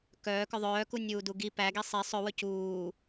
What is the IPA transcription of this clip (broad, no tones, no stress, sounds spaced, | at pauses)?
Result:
k œː k œ ðˤ œː k u nʲ uː d u ɡ i p æ ɡ i sˤ e sˤ ɵ w ɵ c uː